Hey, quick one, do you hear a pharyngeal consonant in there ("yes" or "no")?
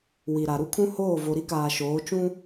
no